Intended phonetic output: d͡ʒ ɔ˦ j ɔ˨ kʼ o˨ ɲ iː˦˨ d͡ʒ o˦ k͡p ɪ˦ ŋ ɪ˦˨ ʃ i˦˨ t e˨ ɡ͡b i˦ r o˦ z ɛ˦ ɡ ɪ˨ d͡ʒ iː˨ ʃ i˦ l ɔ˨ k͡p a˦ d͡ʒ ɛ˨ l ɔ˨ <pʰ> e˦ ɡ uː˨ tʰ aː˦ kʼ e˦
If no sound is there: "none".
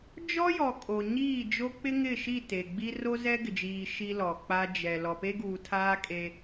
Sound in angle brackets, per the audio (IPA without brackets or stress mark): p